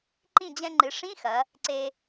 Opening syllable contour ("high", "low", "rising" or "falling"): falling